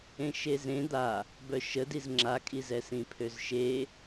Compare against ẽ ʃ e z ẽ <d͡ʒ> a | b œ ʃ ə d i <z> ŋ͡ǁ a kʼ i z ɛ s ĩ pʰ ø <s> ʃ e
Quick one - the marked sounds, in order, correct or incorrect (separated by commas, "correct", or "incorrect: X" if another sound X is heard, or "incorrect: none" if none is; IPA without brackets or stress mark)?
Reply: incorrect: d̪, correct, incorrect: z